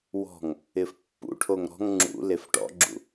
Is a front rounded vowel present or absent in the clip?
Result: absent